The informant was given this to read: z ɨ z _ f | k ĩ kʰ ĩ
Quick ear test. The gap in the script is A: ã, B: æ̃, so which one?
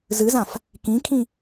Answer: A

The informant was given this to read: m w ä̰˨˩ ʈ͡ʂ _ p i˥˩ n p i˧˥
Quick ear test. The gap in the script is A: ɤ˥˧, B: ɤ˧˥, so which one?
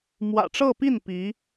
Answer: A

